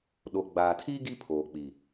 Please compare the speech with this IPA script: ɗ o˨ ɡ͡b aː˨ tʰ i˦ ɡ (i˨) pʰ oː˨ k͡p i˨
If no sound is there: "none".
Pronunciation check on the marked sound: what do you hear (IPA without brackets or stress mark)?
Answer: i˦